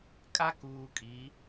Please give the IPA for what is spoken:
kʼ a˦ k uː˨ kʼ i˨˦

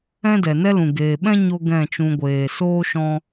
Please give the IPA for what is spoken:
ɛ̃˦ d ɛ˨ n ɛ˦ l ũ˨ ɡ eː˨ ɓ ɛ̃˦ ɲ o˧ ɡ ɛ̃˦˨ t͡ʃ ũ˧ ɡʷ eː˨ s oː˦ ʃ ɔ̃˧

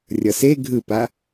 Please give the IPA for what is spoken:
rʲ ʌ s e ɡʱ ɯ p a

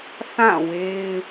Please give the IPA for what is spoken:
θ ã˦˨ w e˦ ɪ̯

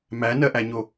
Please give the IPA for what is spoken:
m æ n ɜ ʔ æ ɲ o

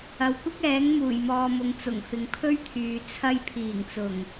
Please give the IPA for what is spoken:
ɐ˨ w kʷ ɪ˥ k̚ ɛː˨˥ ŋ m uː˨˩ j m ɔː˨ m ʊ˨ ŋ t͡s ʊ˨˩ ŋ f ɪ˨ ŋ pʰ ɵ˥ ɥ t̪ʰ yː˨ t͡sʰ ɐ˧ j pʰ iː˨˩ ŋ t͡s ʊ˨˩ ŋ

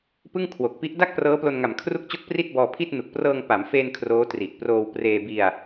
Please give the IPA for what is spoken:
p ɯ˥˩ ŋ kʰ w o˨˩ k̚ p i˦˥ ʔ d a˥˩ k̚ p r ɤː˦˥ p l o˧ n ŋ a˨˩ m kʰ r u˥˩ k̚ t͡ɕ o˥˩ k̚ p r i˥˩ t̚ b ɔː˧ pʰ i˥˩ t̚ n u˨˩ k̚ p r ɤː˧ ŋ p a˩˦ m f eː˧ n kʰ r oː˦˥ t r i˨˩ ʔ p r oː˧ w p r eː˧ b i˧ a̯

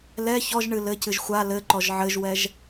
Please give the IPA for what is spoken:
l ɛ ç ɔ ʒ ɳ ɨ l ɘ c ɨ ʒ xʷ a l ɘ ǃ ɔ ʒ ʕ ɘ ʒ w ɛ ʒ

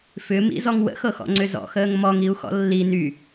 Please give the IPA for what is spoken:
f ʏ m ḭ z ɔ ŋ w ə̰ x ɤ x ɔ̰ ŋ͡ǀ ʏ z ɔ̰ x əː ŋ m ɔ ŋ i u̯ x ɔ̰ lː i n y

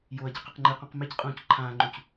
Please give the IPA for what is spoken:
j o ɐ̯ ɟ ɨ q ɨ q ŋ͡ǃ ɨ q ũ q m e c qʼ ũː c ǃʰ ãː ŋ͡ǃ ũ c

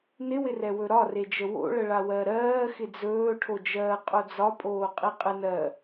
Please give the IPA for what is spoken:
n ɪ w ɪ r ɛ w ɵ ɾ ɒ r e d͡ʒ ə w o̰ ɭ ə ɭ a w ɜ ɾ ɜː x ɪ d͡z ɵː ʈʰ o d͡ʒ ɜː qʼ o d͡z ɒ pʼ oː qʼ i qʼ ɪ n ɜ

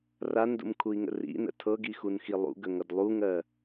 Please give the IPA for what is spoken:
r a n d ṵ m kʰ u i̯ ŋ ə̰ r ḭ n ə̰ tʰ ɤ ɡ i x u n x i lˠ ṵ ɡ ə ŋ ʌ d lˠ u ŋ ɜ

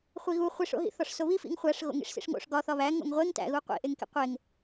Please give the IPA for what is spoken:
χʷ i ɣ u χʷ i ʂ o̰ ɦ ḭ θ ɒ ʂ s o β i f ḭ ŋ χʷ æ ʂ ɣ o̰ ŋ ḭ ʂ s ḭ ʂ ŋ o̰ ʂ ɡ ɒ θ ɒ β æ ŋ o̰ ŋ ʁʷ e ŋ t æ̰ ɣ u qʷ ḭ ʔ e ŋ k ḭ qʷ e ŋ

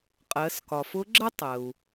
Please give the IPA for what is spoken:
qʼ ɜ˩˧ s k ɒ˩ f ʊ˧˥ ɡ͡ǁ ə˥ tˤ ə˩ u̯

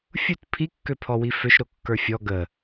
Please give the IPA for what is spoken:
fʲ u t pʰ i kː ø pʰ ɔ w i f ø ʃ ɾ o kː ə˞ fʲ ɔ ɡ ə

